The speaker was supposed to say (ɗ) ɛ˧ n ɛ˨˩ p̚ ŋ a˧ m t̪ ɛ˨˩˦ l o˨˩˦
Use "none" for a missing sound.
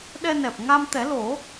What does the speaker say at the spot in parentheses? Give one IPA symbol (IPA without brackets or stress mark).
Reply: ɗ